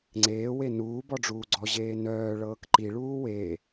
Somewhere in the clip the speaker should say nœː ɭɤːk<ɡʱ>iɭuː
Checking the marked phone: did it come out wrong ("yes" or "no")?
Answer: yes